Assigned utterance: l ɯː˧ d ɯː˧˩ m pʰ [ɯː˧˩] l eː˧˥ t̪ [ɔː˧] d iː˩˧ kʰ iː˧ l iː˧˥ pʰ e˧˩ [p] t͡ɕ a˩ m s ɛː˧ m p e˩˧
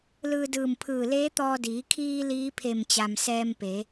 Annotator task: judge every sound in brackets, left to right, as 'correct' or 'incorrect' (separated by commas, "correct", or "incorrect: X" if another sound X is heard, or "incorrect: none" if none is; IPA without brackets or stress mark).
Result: correct, correct, incorrect: m